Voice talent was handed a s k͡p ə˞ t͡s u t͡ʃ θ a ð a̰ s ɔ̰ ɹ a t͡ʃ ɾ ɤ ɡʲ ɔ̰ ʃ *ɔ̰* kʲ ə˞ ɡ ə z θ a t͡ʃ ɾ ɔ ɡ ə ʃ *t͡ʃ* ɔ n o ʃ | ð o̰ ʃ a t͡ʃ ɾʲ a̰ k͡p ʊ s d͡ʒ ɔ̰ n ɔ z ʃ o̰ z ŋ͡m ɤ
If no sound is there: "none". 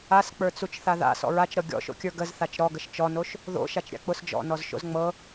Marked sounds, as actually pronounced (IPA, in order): o̰, t͡ʃ

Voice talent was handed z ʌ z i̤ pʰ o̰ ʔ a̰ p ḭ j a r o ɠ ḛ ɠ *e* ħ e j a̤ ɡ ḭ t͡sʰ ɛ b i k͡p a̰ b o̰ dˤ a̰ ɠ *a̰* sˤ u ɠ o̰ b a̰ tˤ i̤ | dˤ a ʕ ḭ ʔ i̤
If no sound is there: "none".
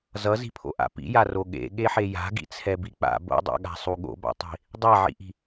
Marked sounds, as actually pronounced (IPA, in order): e, a̤

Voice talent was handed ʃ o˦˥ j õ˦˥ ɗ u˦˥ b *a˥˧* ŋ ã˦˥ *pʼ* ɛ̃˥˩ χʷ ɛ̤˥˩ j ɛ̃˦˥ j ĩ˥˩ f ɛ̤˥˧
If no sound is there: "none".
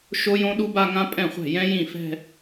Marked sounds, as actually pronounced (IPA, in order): a˥˧, pʼ

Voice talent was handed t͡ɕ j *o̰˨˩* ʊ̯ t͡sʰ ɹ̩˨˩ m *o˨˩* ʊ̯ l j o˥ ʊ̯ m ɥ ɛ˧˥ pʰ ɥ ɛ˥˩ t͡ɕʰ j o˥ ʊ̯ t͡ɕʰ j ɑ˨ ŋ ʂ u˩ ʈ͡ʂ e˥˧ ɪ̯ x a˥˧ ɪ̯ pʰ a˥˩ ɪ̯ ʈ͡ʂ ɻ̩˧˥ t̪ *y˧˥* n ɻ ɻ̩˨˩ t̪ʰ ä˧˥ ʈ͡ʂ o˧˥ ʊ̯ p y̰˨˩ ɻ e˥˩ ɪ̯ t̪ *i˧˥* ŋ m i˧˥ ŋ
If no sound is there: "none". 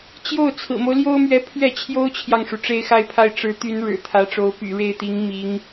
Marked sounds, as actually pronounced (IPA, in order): o˥˩, o˦, y˧˥, i˧˥

